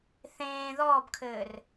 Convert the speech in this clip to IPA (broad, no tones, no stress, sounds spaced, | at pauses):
θ ẽː ð ɔː b kʰ ɘː r